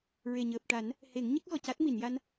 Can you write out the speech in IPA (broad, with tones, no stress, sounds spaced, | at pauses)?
ɹ e˨˩ ɲ əː˨˩ p̚ ʈ a˨˩˦ n | h e˨˩˦ ŋ ɲ ə˦˥ k̚ ɣ ɔ˨˩ c a˦˥ t̚ m i˨˩˨ n j a˧ n